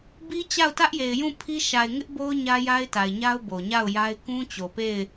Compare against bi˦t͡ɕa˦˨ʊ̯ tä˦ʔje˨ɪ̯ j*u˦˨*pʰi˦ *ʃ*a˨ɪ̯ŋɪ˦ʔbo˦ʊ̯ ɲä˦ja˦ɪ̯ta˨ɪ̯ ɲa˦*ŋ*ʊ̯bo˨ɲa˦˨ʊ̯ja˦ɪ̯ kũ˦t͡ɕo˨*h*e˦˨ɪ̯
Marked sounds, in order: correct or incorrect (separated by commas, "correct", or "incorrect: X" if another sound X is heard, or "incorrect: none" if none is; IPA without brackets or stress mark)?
incorrect: ũ˦˨, correct, incorrect: none, incorrect: p